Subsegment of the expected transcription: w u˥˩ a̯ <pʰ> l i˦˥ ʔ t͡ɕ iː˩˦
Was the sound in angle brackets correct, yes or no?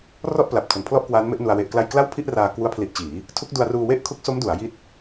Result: yes